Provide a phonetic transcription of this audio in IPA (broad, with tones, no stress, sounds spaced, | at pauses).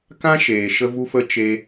k ã˦ ʃ eː˨ ʃ ə˦ v u˦ f ə˦ t͡ʃ e˦